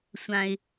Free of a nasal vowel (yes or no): no